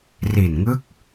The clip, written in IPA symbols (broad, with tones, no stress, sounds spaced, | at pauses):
r i˨˩ n ŋ ɯ˦˥ k̚